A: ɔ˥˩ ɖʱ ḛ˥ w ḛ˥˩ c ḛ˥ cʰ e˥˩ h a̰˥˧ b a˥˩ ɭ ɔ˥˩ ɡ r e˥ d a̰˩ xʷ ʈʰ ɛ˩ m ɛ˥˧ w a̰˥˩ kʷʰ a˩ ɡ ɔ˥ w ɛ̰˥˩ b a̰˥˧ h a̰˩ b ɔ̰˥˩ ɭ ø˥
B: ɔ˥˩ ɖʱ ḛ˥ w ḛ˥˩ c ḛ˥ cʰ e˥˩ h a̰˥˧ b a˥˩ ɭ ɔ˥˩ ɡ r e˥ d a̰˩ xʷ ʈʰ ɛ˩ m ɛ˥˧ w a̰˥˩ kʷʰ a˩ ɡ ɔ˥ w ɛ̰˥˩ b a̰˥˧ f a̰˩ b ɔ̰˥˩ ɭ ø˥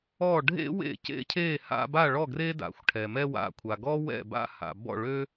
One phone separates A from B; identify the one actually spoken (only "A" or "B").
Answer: A